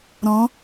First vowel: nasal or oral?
nasal